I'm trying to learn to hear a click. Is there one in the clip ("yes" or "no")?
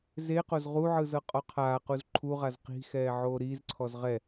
yes